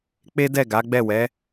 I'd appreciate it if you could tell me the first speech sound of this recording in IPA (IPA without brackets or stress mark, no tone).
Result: k͡p